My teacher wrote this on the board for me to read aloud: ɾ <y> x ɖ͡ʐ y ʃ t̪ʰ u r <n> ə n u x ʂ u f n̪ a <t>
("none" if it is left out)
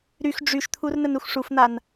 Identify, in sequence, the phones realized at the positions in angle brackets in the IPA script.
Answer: y, n, n

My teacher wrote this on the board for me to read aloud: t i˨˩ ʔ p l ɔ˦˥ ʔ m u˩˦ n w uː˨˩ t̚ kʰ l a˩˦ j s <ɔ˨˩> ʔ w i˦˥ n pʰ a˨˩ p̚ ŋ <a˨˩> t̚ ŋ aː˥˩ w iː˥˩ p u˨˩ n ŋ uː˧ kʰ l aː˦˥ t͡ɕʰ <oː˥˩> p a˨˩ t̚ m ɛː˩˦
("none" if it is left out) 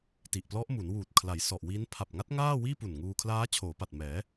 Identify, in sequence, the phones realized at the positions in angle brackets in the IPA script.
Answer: ɔ˨˩, a˦˥, oː˩˦

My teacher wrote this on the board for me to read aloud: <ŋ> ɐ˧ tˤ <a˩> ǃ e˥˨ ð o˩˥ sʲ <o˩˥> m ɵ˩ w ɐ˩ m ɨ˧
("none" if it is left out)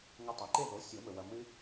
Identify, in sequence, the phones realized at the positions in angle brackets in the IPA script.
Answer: ŋ, a˩, o˨˩˦

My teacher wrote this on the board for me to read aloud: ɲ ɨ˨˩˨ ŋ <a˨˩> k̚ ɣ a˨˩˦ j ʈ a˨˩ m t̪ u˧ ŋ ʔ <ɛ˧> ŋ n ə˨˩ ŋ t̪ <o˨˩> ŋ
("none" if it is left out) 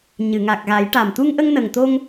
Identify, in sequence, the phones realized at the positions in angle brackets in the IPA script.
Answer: a˨˩, ə˧, o˧

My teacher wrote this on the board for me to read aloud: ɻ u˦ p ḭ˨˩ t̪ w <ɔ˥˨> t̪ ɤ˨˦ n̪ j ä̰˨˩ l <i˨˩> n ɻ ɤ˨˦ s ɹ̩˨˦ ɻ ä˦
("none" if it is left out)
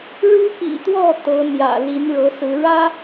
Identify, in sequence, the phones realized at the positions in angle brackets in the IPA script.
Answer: ɔ˥˨, i˨˦

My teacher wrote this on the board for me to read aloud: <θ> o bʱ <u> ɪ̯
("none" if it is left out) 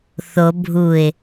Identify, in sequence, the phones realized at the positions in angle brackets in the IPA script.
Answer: θ, u

